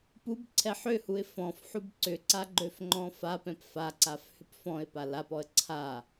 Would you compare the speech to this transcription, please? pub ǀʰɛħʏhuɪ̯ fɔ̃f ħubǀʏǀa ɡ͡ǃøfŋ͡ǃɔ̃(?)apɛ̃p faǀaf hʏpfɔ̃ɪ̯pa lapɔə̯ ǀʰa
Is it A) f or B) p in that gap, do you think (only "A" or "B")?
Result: A